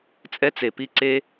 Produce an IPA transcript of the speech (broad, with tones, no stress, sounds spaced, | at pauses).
t͡sʼ ɛ˦ t͡s e˨ p i˦ ǀ e˦